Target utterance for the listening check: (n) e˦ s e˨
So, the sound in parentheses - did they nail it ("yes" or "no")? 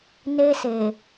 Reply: yes